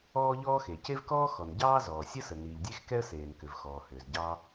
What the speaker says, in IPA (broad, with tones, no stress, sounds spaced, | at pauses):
ɔː˥ ʎ ɔː˥ x e˩ c e˥ v k ɔː˥ x ɔ˩ n ɟ ɑː˥ z ɔː˩ sʲ ə˥ s ə˩ n iː˩ ʎ dʲ e˥ x k ɛ˥ ə̯ s eː˩ n k ʏ˩ v x ɔː˩ h ʏː˩ z ɟ ɑː˥